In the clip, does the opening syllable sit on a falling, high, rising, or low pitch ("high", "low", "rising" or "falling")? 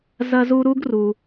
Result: high